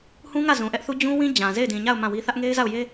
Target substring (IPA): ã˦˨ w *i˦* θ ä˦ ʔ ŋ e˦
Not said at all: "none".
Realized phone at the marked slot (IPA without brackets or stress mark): i˦